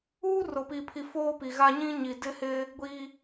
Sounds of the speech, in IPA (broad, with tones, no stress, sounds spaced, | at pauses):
uː˦ r ʊ˨ p i˨ pʰ i˨ f oː˦ p i˨ ɣ a˦ ɲ ĩ˦ ɲ i˨ d ɪ˦ h ɪ˦ | ɡʷ iː˦